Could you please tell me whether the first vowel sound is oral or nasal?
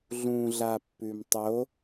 nasal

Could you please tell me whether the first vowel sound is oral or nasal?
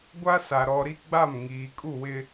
oral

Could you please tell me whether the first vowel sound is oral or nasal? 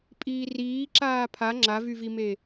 oral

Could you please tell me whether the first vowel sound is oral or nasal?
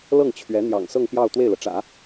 oral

